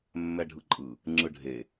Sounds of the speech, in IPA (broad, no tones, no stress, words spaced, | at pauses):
mːɛɖʱɯǃʼɯ | ŋ͡ǁɯɖʱe